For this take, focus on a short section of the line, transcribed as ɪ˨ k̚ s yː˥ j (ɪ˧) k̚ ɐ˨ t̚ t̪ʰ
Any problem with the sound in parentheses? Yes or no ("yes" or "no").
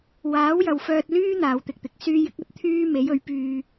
yes